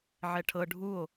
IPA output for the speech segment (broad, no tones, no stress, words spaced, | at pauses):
ʕɛʈʰɤ ɖʱuo̯